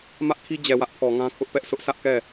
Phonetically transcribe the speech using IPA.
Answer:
m ä˦ ʔ kʰ i˦ d͡ʑ ɛ˨ w ä˦ ʔ pʰ ɔ˨ ŋ ã˦ kʰ ʊ˦ ʔ p ɛ˦ ʔ s ʊ˦ ʔ sʰ ä˦ ʔ k ɛ˦˨

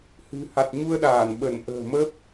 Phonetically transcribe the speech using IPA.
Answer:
h ɨ̤˨˩ h a˨˩ t̚ ɲ u˧ ə̯ ɗ aː˧˩ n ɓ ə˧˩ n ʔ ə̤ː˨˩ m ə˦˥ p̚

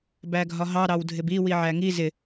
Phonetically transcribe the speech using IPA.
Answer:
b æ ɡʱ ɒ ɦ ɑ ɾ ɑ w dʱ ɪ b i w i ʕ æ ŋ i z ɪ

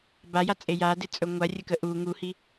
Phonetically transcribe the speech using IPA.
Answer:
b a j a t͡sʼ e j a d ɪ t͡sʼ ɵ ŋʷ a rʲ ə k ə ʔ u ŋ u h i

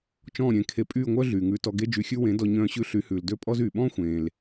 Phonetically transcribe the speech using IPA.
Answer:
t͡ʃ ɔ̃ː˦˨ ɾʲ ẽː˧ kʰ e˧ pʼ yː˦˨ ŋʷ œ˦ ɮ yː˨ ŋ ʉː˧ t ɔ˧ ɡ e˦ d͡ʒ y˧ xʲ ʉ˦ w ẽ˨˦ d ɔ˧ ɲ œ̃ː˧ ɕ ʉ˧ ɬ y˨˦ h ʉː˨ l d ø˦ pʼ ɔ˦ z yː˨ ɓ ɔ̃ː˦ xʷ ẽː˨ l

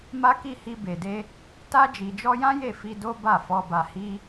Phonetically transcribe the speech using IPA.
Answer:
m a˦ k i˦˨ h i˧ b e˨ d e˧ | t a˧ d͡ʒ i˨ d͡ʒ ɔ˧ j ã˦ j e˦˨ f i˧ d o˦ b a˦˨ f ɔ˧ b a˧ h i˦

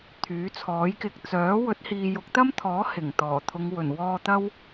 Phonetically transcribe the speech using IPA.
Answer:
t̪ʰ yː˨˥ t͡sʰ ɔː˨˥ j k ɪ˨ k̚ t͡s œː˨˥ w ɵ˨˥ t̚ h iː˨ j ʊ˨˥ k̚ t̪ ɐ˥ m t̪ʰ ɔː˨˥ h ɪ˨˩ ŋ t̪ ɔː˨˩ t̪ʰ ʊ˨˧ ŋ w ɵ˨˩ n w ɔː˧ t̪ ɐ˥ w

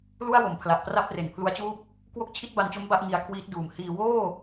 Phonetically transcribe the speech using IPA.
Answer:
l u˥˩ a̯ w o˩˦ m pʰ l a˨˩ ʔ p r a˥˩ p̚ r e˩˦ n pʰ l u˦˥ a̯ t͡ɕ uː˥˩ p̚ | k w o˥˩ k̚ t͡ɕʰ i˥˩ t̚ b a˧ n t͡ɕ o˦˥ m b a˥˩ ʔ ŋ i˧ a̯ kʰ w iː˦˥ t̚ d uː˨˩ m h iː˧ w oː˥˩

